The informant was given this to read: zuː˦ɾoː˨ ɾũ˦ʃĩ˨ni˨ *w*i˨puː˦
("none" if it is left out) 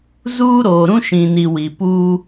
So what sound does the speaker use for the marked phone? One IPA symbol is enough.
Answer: w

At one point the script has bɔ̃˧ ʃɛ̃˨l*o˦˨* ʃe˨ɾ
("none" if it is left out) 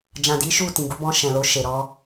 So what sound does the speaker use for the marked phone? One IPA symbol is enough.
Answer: o˧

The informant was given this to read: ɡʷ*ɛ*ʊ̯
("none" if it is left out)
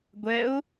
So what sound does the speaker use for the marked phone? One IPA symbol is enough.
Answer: ɛ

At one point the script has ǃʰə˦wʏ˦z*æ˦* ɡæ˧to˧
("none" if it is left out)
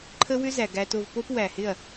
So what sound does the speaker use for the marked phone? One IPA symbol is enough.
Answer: æ˨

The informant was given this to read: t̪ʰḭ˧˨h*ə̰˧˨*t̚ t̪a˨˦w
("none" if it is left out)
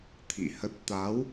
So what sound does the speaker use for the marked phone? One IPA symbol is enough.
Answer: ə˦˥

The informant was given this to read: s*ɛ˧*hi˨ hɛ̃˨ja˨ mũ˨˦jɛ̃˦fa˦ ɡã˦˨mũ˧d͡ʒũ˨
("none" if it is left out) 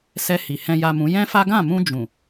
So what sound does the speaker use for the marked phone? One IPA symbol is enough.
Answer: ɛ˧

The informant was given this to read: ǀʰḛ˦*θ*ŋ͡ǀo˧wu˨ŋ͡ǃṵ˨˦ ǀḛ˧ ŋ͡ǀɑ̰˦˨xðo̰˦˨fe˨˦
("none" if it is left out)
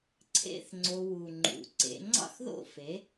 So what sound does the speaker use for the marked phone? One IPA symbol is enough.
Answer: θ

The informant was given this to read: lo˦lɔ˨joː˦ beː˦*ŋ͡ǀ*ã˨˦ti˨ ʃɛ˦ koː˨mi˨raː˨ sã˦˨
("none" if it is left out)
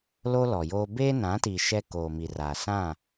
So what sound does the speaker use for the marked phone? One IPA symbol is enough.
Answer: n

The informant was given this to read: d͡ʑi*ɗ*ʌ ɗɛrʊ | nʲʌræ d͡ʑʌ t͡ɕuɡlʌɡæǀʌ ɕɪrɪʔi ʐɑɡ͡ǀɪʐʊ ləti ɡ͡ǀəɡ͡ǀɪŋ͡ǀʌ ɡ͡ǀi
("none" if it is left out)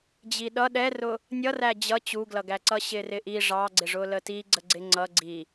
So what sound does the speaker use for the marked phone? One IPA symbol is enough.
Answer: ɗ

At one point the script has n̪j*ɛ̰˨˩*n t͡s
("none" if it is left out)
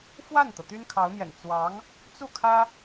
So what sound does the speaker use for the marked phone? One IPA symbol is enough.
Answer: ɛ̰˨˩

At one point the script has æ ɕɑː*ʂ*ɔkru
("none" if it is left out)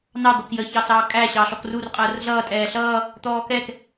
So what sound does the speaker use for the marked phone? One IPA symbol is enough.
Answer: ɬ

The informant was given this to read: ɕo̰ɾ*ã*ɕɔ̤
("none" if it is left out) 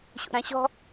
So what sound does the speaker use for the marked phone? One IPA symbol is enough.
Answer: ã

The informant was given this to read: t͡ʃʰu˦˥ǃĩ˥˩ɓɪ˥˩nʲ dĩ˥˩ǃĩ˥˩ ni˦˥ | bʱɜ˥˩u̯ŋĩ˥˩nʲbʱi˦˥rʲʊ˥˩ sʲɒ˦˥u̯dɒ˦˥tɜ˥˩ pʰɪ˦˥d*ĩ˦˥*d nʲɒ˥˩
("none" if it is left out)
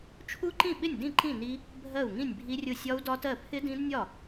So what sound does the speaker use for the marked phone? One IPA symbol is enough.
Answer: ĩ˦˥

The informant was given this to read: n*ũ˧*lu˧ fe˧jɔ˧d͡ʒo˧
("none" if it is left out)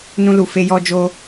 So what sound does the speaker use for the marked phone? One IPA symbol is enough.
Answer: ũ˦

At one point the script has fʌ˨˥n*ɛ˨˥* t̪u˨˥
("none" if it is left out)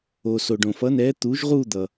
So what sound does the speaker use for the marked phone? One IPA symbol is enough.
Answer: ɛ˨˥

